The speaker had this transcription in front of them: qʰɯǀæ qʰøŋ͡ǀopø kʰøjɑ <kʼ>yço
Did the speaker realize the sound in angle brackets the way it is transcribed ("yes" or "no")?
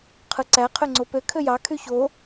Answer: no